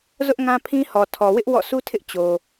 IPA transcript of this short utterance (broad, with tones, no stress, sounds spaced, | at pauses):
z ʊ˦ ʔ ŋ ã˦ pʰ ĩ˦ h ɔ˨ tʰ ɔ˨ w ɪ˦ ʔ w ɔ̰˦˨ sʰ u˦ tʰ ɪ˦ ʔ t͡ɕ o˨